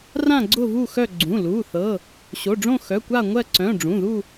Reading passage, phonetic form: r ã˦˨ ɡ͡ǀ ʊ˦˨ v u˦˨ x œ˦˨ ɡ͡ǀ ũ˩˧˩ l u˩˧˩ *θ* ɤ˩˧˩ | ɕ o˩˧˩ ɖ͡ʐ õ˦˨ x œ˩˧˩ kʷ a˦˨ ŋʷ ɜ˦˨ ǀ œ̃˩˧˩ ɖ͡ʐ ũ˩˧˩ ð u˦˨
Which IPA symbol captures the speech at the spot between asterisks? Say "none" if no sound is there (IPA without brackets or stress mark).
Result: θ